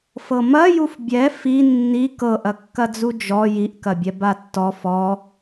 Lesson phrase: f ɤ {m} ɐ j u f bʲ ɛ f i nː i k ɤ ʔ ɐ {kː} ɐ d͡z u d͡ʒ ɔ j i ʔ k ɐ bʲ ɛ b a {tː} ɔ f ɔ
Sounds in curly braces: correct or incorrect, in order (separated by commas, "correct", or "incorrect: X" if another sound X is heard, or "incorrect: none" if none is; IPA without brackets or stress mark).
correct, correct, correct